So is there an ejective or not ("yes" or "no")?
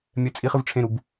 yes